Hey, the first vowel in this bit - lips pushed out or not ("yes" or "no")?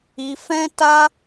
no